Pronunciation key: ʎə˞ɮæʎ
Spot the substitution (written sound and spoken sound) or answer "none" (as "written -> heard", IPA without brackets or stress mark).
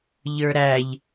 ɮ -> ɾ